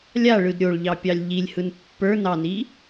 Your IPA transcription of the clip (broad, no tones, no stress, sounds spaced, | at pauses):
lʲ a ɭ ɯ d ɾʲ o ɭ ʎ ɑ pʲ ɑ lʲ ʎ i lʲ h ɯ n pː ə˞ n ɑ n i